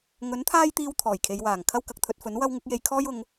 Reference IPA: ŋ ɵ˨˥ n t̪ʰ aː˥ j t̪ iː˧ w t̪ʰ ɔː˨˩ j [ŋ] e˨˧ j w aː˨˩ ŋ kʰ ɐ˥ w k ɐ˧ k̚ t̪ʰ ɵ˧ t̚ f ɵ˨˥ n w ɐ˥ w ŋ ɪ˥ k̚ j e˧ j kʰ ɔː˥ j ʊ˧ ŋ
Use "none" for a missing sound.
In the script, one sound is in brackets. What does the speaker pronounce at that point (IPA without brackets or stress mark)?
kʰ